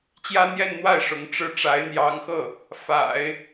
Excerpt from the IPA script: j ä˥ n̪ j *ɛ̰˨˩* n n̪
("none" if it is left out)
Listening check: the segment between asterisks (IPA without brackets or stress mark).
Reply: ɛ˥˧